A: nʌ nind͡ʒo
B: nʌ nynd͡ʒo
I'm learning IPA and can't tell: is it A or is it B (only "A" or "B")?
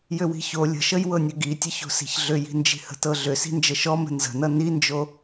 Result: A